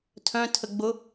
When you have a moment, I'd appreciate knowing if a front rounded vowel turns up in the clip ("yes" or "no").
yes